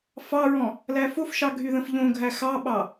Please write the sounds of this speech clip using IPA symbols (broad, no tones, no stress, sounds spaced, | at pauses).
f ɑ ɹ ɔ̃ | l æ f o f ʃ ɑ ɡʱ y ð ə̃ f ʎ õ ɡʱ æ x ɑ ɓ ɑ